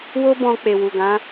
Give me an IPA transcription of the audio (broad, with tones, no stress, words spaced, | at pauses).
wo˦bɔ̃˧ k͡pe˨wu˨ɡã˨˦